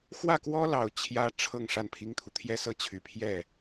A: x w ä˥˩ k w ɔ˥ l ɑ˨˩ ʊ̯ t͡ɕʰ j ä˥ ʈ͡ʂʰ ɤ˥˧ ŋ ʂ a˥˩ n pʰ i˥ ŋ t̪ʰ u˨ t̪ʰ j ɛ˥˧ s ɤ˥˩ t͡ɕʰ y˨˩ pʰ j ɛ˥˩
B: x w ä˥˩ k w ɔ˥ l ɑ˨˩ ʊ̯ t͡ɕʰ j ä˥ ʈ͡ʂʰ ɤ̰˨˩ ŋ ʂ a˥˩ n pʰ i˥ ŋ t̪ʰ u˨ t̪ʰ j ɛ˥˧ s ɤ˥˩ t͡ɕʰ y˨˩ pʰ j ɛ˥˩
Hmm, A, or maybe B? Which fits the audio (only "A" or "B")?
A